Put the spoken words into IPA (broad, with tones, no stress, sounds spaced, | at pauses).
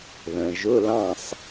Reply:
ð ə̃˩ ʒ ʊ˧˥˧ l ɑ̃˥˨ sˤ